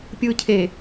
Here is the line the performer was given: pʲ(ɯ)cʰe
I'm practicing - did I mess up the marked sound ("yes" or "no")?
yes